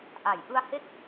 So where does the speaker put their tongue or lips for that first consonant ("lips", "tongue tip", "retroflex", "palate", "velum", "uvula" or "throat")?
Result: throat